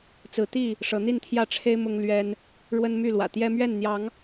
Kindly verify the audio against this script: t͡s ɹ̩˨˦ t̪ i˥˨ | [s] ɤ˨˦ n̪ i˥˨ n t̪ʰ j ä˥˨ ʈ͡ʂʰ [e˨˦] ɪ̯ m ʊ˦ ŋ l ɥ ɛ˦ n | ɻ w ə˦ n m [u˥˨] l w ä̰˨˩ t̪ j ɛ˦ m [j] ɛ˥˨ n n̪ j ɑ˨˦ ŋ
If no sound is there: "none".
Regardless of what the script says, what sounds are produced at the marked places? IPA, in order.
ʂ, e˦, y˥˨, ɥ

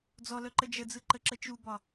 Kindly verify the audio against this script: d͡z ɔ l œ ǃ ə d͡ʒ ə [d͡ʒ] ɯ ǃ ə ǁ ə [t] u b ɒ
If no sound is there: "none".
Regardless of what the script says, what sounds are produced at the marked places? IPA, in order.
d͡z, t͡ʃ

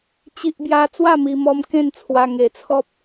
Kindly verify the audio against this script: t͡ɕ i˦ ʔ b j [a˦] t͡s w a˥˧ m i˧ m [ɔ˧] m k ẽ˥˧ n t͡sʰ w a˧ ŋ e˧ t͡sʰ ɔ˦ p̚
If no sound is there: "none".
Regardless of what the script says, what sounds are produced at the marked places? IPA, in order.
a˦, ɔ˧

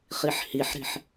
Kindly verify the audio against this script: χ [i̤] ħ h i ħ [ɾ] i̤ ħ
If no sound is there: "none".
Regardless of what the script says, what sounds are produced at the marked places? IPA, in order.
i, ɾ

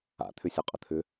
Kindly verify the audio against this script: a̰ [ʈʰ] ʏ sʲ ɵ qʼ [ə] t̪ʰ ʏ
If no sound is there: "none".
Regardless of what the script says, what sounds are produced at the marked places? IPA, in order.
t̪ʰ, ə

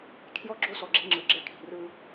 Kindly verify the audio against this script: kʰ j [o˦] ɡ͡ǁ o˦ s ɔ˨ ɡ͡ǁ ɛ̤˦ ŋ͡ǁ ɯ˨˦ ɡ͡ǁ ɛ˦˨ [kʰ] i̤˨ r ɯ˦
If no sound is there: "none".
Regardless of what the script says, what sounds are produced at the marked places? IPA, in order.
ɔ˦, kʰ

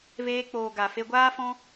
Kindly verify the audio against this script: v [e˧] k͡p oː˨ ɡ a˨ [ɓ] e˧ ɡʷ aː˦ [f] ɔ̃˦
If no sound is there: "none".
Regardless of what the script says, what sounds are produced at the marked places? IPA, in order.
eː˧, f, f

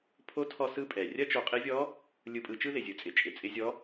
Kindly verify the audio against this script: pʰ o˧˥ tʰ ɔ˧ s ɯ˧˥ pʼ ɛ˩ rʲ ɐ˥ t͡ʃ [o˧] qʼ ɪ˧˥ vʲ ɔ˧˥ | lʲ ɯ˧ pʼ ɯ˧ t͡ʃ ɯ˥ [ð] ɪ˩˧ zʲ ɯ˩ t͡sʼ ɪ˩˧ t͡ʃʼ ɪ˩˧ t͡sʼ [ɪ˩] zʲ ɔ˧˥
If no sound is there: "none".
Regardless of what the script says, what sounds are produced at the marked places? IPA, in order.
o˧, ð, ɪ˧˥

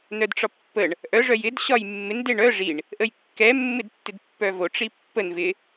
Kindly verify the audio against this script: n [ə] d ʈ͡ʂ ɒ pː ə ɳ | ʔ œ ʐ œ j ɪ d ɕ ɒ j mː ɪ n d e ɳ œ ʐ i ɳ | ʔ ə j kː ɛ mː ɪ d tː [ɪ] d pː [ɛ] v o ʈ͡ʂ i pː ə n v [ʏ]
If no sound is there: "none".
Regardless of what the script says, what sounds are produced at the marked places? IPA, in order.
œ, ɪ, œ, ɪ

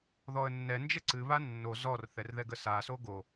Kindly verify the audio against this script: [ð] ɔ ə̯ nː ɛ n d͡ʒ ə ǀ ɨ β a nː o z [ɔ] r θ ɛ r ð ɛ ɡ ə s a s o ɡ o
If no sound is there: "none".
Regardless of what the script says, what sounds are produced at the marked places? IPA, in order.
ð, ɔ

